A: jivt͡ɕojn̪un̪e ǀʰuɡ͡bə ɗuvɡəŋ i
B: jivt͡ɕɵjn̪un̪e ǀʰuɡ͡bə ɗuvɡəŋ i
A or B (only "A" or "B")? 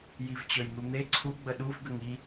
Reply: B